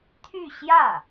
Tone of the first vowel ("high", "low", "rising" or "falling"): falling